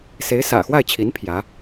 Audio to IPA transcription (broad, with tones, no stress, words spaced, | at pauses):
se˧˥ɪ̯sä̰˨˩xwa˥˩ɪ̯t͡ɕʰi˧˥n pʰjä˧˥